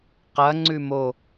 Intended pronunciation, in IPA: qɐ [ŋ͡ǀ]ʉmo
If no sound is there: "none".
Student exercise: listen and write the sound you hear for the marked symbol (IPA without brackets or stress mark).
ŋ͡ǀ